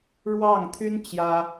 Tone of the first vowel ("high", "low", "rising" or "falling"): falling